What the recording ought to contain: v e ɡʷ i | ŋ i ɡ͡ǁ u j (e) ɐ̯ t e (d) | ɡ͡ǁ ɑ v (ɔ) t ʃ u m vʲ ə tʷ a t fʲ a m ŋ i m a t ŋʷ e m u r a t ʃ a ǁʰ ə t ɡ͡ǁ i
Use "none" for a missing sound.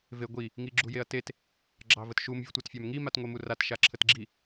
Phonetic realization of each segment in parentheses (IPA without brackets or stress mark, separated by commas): e, t, ə